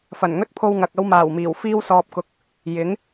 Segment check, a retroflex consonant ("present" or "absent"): absent